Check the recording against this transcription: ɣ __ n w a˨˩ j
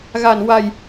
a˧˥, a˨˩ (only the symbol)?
a˨˩